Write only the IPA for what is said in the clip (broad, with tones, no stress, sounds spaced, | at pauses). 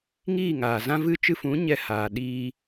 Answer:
ŋ iː˦˨ ŋ aː˨ z ã˦ v ɨ˧ t͡ʃ ɨ˧ f ũ˨˦ ɲ ɛ˧ h aː˨ ɗ iː˧